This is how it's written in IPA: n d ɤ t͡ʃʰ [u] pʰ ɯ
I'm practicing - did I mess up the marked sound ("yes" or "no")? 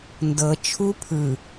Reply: no